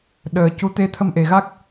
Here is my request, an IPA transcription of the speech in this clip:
ɗ əː˨˩ c u˧˥ t̪ e˧˥ t̪ʰ ə˧ m ʔ e˨˩ ɣ a˦˥ k̚

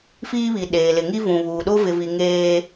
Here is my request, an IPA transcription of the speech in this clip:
f iː˦ β i˨ ɗ eː˨ l ɪ˨ ŋ i˦ v ũ˨ β uː˨ ɗ o˦ v ɪ˨ v i˨ ŋ eː˦

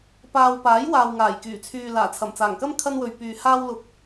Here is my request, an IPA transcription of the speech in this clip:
p aː˨ w p aː˨˥ j w aː˨ w ŋ aː˨˩ j k yː˨˩ t͡sʰ yː˨ l aː˨˩ t͡sʰ ɐ˨˩ m t͡s aː˨˩ ŋ k ɐ˥ m kʰ ɐ˥ n w ɵ˨ ɥ p yː˨ h aː˥ w l ʊ˧ k̚

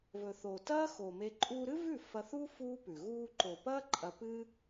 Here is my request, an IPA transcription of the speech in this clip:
v ɵ˨ θ o˨ t ɐː˦ x o˨ m e˧ ǃʼ uː˧ ɾ ɨ˦ v ʉ˦˨ f ɐ˧ θ u˦ f uː˦ p ʉ˨ ɣ uː˧ ǃ o˨ p ɐː˦ ǃʼ ɐ˧ p ɨ˦

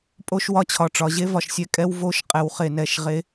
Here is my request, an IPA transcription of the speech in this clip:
pʼ o˦ ʃ w ɒ˦ t͡ɕʰ ɒ˨ ʈ͡ʂ ɒ˨ ʑ e˦ v ɒ˨ ʃ sʲ ɛ˦ kʼ ɛ˦ w v o˦ ʃ qʼ ɛ˨ w χ e˨ n ɛ˨ ʃ ʁ e˨˦

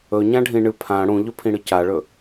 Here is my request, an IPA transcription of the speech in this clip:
ɵ ɲ ã ɖʱ ĩ ɳ ɨ pʰ ã ɽ ũ ʎ ɵ pʰ ĩ ɽ ɨ c a ɭ ɵ

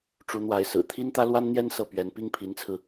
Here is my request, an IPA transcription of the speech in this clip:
ʈ͡ʂ u˧˥ n̪ w a˧˥ ɪ̯ s ɹ̩˨˩ t̪ʰ i˥ n t̪ ä˥ l w a˥ n n̪ j ɛ˥ n s ɤ˥˩ p ɥ ɛ˧˥ n p i˥ ŋ pʰ i˧˥ n t͡sʰ ɹ̩˧

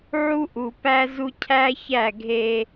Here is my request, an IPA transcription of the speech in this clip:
ʕ u˦ ʔ u˨ p æ˦ z u˦ cʰ æ˦ ç æ˦˨ ɡʱ e˦

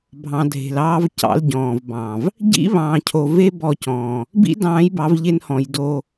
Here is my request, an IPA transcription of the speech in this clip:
bʱ ɑ̃˨ dʱ e̤˨ l ɑː˦ v c ɑ̰˦ l ɟ ɔ̃ː˨ v b ɑ̃˨ v | ɟ ḭ˦ β ɑ̃ː˨ cʰ o˨ v e˦ b ɔ˦˨ c ɔ̃ː˨ | b ḭ˦ d ɑ̃ː˨˦ j b ɑ˨˦ v ʎ e˦ n h ɔ̃˨ j d o˦

